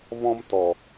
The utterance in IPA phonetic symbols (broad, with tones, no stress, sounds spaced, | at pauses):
v ɔ̃˧ m t ɔ˨